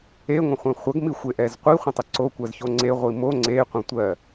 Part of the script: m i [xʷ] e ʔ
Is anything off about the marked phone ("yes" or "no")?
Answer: no